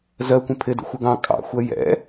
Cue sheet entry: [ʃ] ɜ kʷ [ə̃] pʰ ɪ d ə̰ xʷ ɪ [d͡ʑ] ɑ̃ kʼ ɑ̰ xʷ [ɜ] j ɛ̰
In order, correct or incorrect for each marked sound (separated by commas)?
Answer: incorrect, correct, incorrect, correct